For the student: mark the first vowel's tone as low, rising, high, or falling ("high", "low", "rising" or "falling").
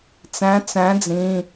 rising